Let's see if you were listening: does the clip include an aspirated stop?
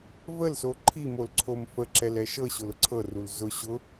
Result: yes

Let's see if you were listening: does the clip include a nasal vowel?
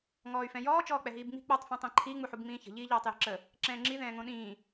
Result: yes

